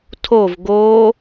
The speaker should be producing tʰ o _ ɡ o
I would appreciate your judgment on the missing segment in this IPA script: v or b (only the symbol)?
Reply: v